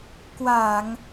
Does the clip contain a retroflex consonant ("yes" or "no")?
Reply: no